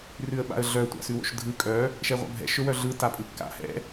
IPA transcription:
r ʉ ə̯ ɓ a̰ ə̯ ɮ œ tʷ a̰ s ʉ w o̰ ʃ dʱ ɯ kʼ œ | ʃ ɛ ʁʷ a̰ bʱ ɛ̰ ʃ ɵ w œ ɮ ɯ t a pʼ ɯ kː a̰ h ɛ̰

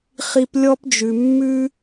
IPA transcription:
χ i˥ p lʲ ɔ˥ p d͡ʒ ʉ˧ mː ʉ˥

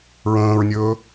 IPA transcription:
ɹ ə̃ː ɹ nʲ ɵː

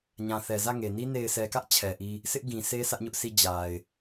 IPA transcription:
ɲ ã˨ θ ɛ˨ z ä˦˨ ŋ e˨ n i˦ n e˨ ɪ̯ sʰ ɛ˨ k ä˦ ʔ t͡ɕʰ ɛ˨ ʔ i˦ | sʰ ɪ˦ ʔ ɡ ĩ˨ s e˦ s ä˦ ʔ ɲ ʊ˦ ʔ s i˦ d͡ʑ a˨ ɪ̯

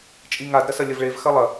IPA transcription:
t͡ʃʼ i ŋ a d ɾ ɐ s ɐ lʲ ɐ v ɭ e v x ɐ lˠ ɐ

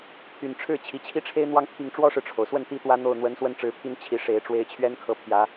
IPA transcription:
t̪ʰ y˨˩ n ʈ͡ʂʰ ɻ̩˥˩ t͡ɕʰ i˨˩ t͡ɕʰ i˥ ʈ͡ʂʰ e˥ ɪ̯ n̪ w ɑ˥˧ ŋ t̪ʰ i˥˩ ŋ ʈ͡ʂ w ɔ˥ ʂ ɻ̩˨ ʈ͡ʂʰ o˩ ʊ̯ s w ə˥˩ n t̪ i˥ t̪ w ä˥ n̪ o˥˩ ʊ̯ n̪ w ə˧˥ n s w ə˥˩ n ʈ͡ʂ ɻ̩˧˥ pʰ i˥ n t͡ɕʰ i˧˥ ʂ e˧˥ ɪ̯ ʈ͡ʂ w e˥ ɪ̯ t͡ɕʰ ɥ ɛ˥ n kʰ ɤ˥ pʰ j ä˧˥

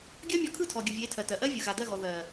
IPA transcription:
ɡʲ ɜ˦ mʲ ɔ˧ kʰ ɯ˦˨ tʰ ɔ˨ ɡʲ ɯ˨ vʲ e˨˦ tʰ ɜ˨ t ɜ˨ ʔ ɜ˦ vʲ ɯ˨ ɣ a˨ d ɜ˦˨ ɣ ɔ˨ ð ɜ˨

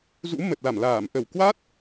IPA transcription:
z ṵ˧˥ m ə˨˩ t̚ l a˧˩ m l aː˧˩ m ʔ ə˧˩ w k w a˦˥ t̚

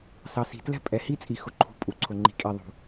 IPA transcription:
s ɑ˨ s i̤˨ t l ɛ̤˦ pʼ ɛ˨ h i˦ t͡sʼ i˨ x ʊ˨ ǃʰ ṳ˨ pʼ u˨ ǀʰ ʊ˨ ŋ͡ǃ i̤˨ kʼ i˨ ðˤ ṳ˨

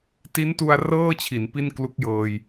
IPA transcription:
t i˦˥ n t u˧ a̯ r ɤː˥˩ t͡ɕʰ i˩˦ n p i˥˩ n k l u˦˥ k̚ j ɤː˧ j

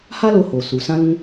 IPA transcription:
h a˦ l o˧ h o˨ s u˨ s ã˧ l ũ˧

